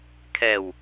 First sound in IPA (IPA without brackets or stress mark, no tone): kʰ